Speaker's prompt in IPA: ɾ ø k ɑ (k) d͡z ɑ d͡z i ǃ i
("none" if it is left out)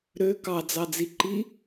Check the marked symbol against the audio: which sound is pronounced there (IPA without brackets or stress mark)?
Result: none